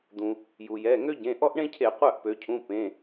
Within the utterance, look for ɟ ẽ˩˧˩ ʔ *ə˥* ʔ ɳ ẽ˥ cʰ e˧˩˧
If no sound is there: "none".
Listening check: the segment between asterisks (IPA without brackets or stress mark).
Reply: ɔ˥